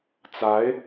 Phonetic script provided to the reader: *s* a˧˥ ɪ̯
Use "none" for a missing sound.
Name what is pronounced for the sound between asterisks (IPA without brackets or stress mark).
t͡s